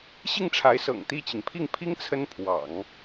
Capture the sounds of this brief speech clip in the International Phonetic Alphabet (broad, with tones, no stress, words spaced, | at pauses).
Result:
ɕi˥˩ŋʈ͡ʂʰa˧˥ɪ̯sɤ̰˨˩ŋ t̪i˥˩t͡ɕi˩ŋ pʰi˥˩ŋpʰi˥ŋ t͡sʰə˥npʰwɑ̰˨˩˦ŋ